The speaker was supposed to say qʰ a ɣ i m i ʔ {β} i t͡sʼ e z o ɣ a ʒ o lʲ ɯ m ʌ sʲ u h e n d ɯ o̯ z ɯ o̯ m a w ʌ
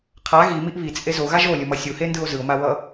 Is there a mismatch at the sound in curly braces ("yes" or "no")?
no